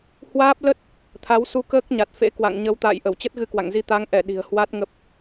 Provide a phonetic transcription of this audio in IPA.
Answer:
h w aː˦˥ p̚ l ə˦˥ t̚ | t̪ʰ a˨˦ w s u˧ k əː˦˥ k̚ ɲ a˨˩ t̚ f ḛ˧˥ k w a̰˧˨ ŋ ɲ ə˨˦ w t̪ a̰ː˧˨ j ʔ ə˧˩ w t͡ɕ ə˦˥ t̚ ɣ ɨ˧ k w a̰˧˨ ŋ z i˧ t̪ a˨˦ ŋ ʔ ɛ˧˩ ɗ i̤˨˩ ə̯ h w a˦˥ t̚ ŋ ə˦˥ p̚

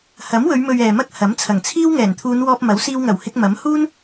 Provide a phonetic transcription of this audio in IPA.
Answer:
h ɐ˨˥ m w ɵ˨˧ ɥ m ɵ˨ ɥ ɛː˨ m ɐ˥ k̚ h ɐ˨˥ m t͡sʰ ɐ˨˩ ŋ t͡sʰ iː˥ w ŋ ɛː˨˩ n t̪ʰ uː˨˧ n w ɔː˧ p̚ m ɐ˨˥ w s iː˧ w ŋ ɐ˨˩ w h ɪ˧ k̚ m ɐ˨˥ m h uː˥ n

